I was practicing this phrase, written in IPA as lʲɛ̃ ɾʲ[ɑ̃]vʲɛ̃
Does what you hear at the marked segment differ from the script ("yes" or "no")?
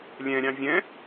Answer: no